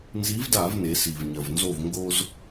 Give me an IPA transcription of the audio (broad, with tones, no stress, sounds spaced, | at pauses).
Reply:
n z i˨˥ v d a˧˩˧ v n e˩˧ s i˩ v ɲ ɐ˩ v n z o˧˩ v ŋ ɡ o˦ z